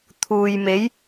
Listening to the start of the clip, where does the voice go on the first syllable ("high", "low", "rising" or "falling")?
low